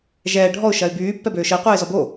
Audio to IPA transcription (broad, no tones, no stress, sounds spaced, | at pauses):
ʒ ɛː ɖʱ ɔ ʊ̯ ʃ ɐ ɪ̯ b yː pː ɛ b øː ʃ ə ɪ̯ qʷ ɛː ɪ̯ z ɔ b o